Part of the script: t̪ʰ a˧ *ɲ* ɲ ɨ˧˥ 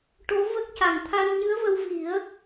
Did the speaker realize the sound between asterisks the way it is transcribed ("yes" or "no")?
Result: no